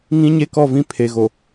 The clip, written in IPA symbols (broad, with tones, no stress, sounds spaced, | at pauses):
ŋ ĩ˦ ɲ e˦ k ɔ˦˨ v ĩ˦ pʰ e˨ ɣ o˨